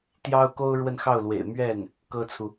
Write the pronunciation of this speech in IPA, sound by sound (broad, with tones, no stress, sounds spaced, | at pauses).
t̪ j ɑ˥ ʊ̯ k o˥ ʊ̯ ɻ w ə˥˧ n x ɑ˥˩ ʊ̯ l w ḛ˨˩ ɪ̯ m ɥ ɛ˥˩ n | k ɤ˥ t͡sʰ u˨